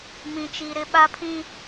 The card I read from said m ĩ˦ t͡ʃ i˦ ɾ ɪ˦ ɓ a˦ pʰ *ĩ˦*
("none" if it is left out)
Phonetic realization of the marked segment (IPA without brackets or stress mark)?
ĩ˦